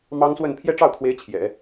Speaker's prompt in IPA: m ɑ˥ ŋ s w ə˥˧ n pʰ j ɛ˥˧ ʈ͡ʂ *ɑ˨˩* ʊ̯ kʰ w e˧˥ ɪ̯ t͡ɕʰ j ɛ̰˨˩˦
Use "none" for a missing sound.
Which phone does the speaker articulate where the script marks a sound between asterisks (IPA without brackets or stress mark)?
ɑ˥˩